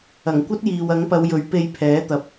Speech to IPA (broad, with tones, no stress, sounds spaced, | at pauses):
ɐ˨˩ ŋ kʷ ɐ˥ t̚ j iː˨ w ɐ˨˥ ŋ p ɐ˨˧ w j ɵ˨˥ ɥ p e˧ j pʰ ɛː˨˥ t̪ ɐ˨˥ p̚